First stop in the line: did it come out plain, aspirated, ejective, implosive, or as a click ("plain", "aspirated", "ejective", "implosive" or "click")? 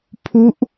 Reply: aspirated